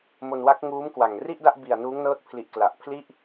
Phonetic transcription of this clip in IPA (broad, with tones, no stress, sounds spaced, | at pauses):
m o˧ n w a˦˥ k̚ ŋ uː˦˥ m k w a˨˩ ŋ r i˥˩ ʔ d a˥˩ ʔ b i˨˩ a̯ n uː˦˥ ŋ n ɤː˦˥ t̚ pʰ l i˨˩ ʔ k l a˨˩ ʔ pʰ l i˥˩ ʔ